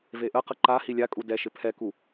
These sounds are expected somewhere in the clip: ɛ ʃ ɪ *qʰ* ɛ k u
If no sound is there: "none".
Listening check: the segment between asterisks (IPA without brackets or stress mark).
pʰ